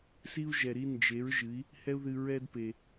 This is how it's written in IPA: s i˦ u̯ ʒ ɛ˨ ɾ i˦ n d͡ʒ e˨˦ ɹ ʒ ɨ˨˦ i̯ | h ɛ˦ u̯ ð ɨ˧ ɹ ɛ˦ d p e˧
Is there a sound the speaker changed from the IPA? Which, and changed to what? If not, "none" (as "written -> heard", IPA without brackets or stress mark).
none